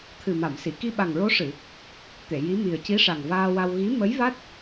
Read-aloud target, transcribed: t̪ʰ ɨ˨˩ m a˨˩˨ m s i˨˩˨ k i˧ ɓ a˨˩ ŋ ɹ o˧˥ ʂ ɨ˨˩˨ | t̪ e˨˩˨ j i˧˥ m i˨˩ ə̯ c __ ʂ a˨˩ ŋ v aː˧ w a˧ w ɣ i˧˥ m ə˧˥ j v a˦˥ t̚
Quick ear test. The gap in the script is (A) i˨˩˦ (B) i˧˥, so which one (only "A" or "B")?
B